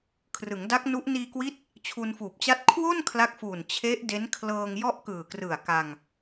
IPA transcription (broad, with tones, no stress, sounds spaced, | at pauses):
kʰ r ɯ˩˦ ŋ d a˦˥ k̚ n u˦˥ ʔ n iː˧ k w i˦˥ t̚ | t͡ɕʰ u˧ n f uː˨˩ p̚ t͡ɕ a˥˩ t̚ kʰ w o˥˩ n kʰ l a˦˥ k̚ f uː˨˩ n t͡ɕʰ e˦˥ ʔ d e˦˥ n kʰ l ɤː˧ ŋ j ɔ˥˩ ʔ k ɯː˨˩ k r ɯ˨˩ a̯ k a˧ ŋ